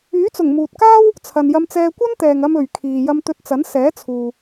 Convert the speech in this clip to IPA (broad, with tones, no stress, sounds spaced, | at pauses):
yː˨˥ t͡s ʊ˨˩ ŋ m uː˨ t̚ k aː˥ w | t͡sʰ ɐ˨ n j ɐ˧ m t͡s ɛː˧ kʷ ɐ˥ n t̪ ɛː˨ ŋ ɐ˧ m ɵ˨ ɥ kʰ iː˨ j ɐ˧ m t̪ ɵ˧ t̚ t͡s ɐ˨˥ n s ɛː˨˥ t͡sʰ uː˨